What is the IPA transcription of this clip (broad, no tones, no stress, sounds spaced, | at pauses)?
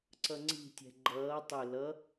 ǀ ʌ ŋ͡ǀ i̤ tʲ ɛ̤ ɡ͡ǃ ʌː tˤ ɵ l ʌ